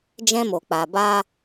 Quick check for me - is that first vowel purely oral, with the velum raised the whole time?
no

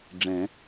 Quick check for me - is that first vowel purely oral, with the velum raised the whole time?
no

